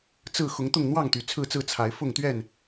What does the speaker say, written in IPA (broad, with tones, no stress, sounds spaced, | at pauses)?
t͡s ɹ̩˥˨ x ʊ˨˦ ŋ t̪ ʊ˥˨ ŋ n̪ w ɑ˥˨ ŋ t̪ y˨˩ t͡sʰ ɹ̩˥˨ t͡s ɹ̩˥˨ t͡sʰ a˨˦ ɪ̯ f ʊ˥˨ ŋ t̪ ɥ ɛ˥˨ n